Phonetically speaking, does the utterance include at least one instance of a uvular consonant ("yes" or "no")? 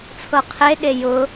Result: yes